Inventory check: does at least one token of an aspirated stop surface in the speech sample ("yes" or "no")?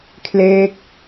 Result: yes